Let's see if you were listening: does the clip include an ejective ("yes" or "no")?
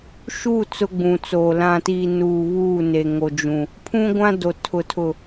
no